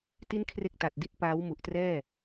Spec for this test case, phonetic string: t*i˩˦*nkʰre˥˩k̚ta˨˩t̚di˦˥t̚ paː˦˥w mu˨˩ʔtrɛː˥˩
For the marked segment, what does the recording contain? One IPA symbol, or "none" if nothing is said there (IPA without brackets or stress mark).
i˥˩